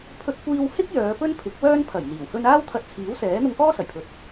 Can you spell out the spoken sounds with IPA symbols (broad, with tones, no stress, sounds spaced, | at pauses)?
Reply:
pʰ ɵ˧ t̚ kʷ iː˧ w h ɪ˥ k̚ j œː˨˧ p ɵ˥ n pʰ ɪ˨˥ k̚ w œː˥ n pʰ ɐ˨˩ j n̪ iː˨˩ w h ɵ˥ n aː˥ w t̪ʰ ɐ˧ t̚ t͡sʰ iː˨˥ w s ɛː˨˥ n̪ ʊ˧ ŋ k ɔː˥ s ɐ˨˩ j pʰ ɵ˨ t̚